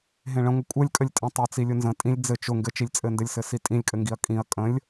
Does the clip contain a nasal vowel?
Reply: yes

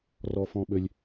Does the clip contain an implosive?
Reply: yes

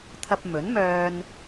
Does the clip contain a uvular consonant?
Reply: no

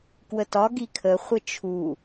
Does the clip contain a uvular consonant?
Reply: yes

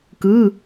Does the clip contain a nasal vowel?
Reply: no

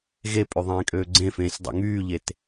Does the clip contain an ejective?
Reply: yes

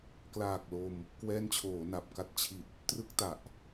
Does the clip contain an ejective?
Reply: no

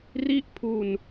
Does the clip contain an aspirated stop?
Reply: yes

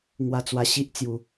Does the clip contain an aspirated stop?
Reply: no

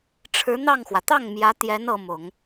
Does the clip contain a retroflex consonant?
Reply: yes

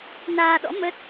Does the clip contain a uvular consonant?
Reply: no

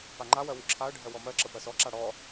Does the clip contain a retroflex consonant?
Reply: yes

